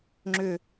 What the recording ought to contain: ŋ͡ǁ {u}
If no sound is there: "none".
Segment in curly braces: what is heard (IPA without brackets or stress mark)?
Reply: ʏ